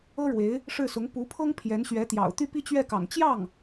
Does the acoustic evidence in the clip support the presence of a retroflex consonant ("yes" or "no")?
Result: yes